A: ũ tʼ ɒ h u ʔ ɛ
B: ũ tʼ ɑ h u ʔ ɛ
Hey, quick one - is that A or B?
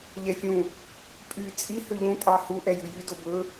B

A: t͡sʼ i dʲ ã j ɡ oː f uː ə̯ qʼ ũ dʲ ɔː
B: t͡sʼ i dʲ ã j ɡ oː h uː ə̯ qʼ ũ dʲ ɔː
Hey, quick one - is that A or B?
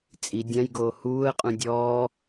B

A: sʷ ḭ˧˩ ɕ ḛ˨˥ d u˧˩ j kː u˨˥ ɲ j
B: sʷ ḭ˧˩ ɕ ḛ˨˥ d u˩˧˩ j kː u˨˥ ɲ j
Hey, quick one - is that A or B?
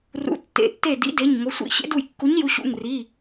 A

